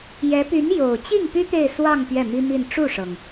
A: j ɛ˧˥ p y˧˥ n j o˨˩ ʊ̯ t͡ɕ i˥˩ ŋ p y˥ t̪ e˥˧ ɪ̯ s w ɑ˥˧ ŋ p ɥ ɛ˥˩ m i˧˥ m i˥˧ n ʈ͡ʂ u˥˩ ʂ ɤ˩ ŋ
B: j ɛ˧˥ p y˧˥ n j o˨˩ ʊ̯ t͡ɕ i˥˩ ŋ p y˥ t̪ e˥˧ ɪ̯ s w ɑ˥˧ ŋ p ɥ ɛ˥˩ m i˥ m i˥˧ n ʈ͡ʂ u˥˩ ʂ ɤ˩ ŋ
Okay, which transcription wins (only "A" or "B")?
B